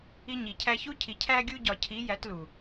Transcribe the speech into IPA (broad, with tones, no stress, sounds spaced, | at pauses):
i˧ ɲ i˨ cʰ æ˧ ç u˦ cʰ i˨ cʰ æ˧ ɡʲ u˧ ɟ ɒ˨ cʰ i˨˦ j æ˨˦ t l u˨